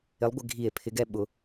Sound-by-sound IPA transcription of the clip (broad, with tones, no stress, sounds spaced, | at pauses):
ɪ˨˥ lˠ ɡʷ ɪ˩˧ ɡʱ i˧˩˧ e̯ pʰ ɪ˨˥ ɡ ɛ˧˩ ɓ ʊ˩˧